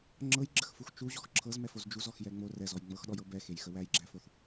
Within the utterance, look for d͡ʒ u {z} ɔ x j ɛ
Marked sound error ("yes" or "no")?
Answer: no